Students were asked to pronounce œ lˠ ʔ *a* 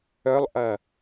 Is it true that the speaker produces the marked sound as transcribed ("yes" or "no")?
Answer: no